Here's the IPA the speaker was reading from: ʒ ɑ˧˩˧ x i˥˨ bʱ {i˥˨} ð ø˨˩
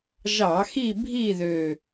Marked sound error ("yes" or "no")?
no